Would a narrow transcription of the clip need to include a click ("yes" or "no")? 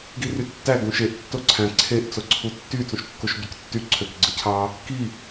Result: yes